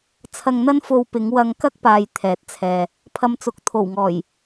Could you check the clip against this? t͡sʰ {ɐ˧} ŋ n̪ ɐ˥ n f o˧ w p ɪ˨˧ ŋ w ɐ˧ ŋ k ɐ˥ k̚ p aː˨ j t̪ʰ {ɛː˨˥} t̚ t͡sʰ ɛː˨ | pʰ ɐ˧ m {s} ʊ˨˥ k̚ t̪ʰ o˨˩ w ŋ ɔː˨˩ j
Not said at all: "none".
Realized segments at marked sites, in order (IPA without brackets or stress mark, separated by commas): ɐ˧, ɛː˨˥, t͡s